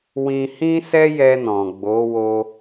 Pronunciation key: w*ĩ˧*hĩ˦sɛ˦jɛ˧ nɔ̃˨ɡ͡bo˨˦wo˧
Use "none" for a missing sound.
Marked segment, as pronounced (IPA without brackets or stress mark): ĩ˧